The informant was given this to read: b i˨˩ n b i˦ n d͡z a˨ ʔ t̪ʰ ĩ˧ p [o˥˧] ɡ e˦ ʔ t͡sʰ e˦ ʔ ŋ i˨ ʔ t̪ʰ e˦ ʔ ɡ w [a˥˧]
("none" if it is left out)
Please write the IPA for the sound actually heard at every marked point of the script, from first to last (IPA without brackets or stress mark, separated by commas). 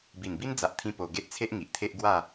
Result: o˧, a˥˧